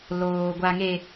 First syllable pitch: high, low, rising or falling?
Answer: low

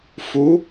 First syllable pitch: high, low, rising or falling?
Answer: rising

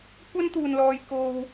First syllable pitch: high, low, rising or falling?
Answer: high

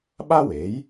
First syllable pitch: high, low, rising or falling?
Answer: high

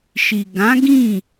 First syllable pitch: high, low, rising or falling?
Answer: low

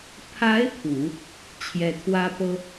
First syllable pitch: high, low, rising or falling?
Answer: rising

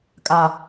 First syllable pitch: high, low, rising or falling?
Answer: low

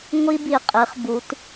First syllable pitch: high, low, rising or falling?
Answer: high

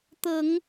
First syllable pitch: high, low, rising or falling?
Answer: low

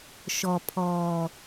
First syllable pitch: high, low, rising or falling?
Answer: low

